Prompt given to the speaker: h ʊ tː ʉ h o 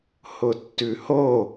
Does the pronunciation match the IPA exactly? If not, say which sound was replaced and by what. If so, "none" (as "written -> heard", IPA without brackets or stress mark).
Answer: none